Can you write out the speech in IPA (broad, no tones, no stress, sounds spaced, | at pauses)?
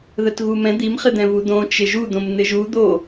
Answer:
ð ə t ɣ u m ɛ̃ d̪ i m χ ɪ d̪ ɛ̃ v u d̪ õ t͡ʃ ɪ ʒ u d̪ õ m n̪ ɪ ʒ u d̪ o